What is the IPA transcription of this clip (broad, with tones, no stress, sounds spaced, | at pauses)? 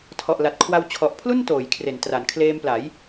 tʰ ɔ˨˩ ʔ l a˨˩ t̚ kʰ w a˧ w t͡ɕʰ ɔ˨˩ ʔ pʰ l u˥˩ n t oː˩˦ j kʰ r e˩˦ n t r a˩˦ n kʰ l eː˧ m p l a˩˦ j